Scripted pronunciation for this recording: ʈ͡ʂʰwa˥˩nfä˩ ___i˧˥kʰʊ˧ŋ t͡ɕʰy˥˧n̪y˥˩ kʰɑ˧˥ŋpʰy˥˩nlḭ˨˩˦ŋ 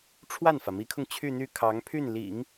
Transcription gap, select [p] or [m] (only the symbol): m